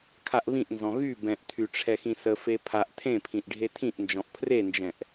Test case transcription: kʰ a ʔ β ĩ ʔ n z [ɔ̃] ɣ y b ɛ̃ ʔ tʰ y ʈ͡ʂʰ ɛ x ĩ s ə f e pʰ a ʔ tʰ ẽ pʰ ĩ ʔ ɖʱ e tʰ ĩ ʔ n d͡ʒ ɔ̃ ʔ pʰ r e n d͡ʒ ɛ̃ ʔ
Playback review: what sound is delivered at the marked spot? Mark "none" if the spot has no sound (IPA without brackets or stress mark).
ɔ̃